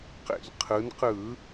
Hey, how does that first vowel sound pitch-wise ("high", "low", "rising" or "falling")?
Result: low